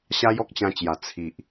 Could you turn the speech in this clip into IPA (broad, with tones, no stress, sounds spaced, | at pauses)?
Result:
ɕ a˦ j ɔ˦ k̚ t͡ɕ ã˧ t͡ɕ j a˨˩ t͡sʰ i˨ ʔ